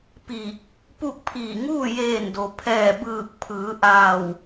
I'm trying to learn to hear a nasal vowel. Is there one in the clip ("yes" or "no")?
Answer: no